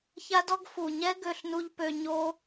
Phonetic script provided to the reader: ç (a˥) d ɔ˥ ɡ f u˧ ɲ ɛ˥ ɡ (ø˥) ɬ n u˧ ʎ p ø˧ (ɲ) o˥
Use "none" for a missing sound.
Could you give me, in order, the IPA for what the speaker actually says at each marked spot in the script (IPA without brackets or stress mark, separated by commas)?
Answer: a˥, ø˧, ɲ